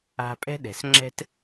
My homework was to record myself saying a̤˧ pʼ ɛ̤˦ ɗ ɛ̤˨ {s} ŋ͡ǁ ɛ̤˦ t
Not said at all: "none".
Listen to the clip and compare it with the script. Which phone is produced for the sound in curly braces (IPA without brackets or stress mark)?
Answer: s